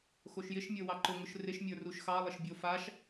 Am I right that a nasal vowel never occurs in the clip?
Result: yes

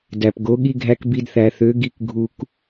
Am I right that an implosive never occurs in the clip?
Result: no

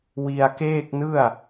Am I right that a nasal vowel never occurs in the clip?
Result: yes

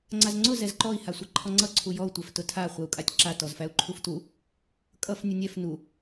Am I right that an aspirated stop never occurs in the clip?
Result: no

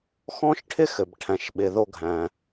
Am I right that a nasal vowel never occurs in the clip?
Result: no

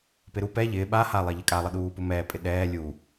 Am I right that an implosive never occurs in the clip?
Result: no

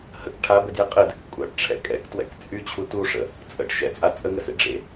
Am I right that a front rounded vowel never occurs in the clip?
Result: no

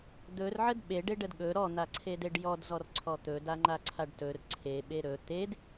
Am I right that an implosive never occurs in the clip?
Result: no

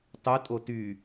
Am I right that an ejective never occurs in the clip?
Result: no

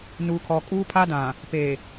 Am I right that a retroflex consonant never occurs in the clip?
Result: yes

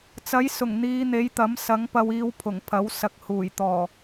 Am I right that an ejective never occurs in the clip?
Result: yes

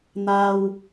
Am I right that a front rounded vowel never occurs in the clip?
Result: yes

